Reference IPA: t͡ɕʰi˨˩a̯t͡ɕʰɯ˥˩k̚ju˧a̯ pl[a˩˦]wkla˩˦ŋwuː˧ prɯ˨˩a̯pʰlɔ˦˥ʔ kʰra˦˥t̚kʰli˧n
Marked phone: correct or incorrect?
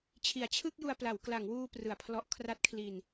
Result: correct